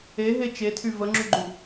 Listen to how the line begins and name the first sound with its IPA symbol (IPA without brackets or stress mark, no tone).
e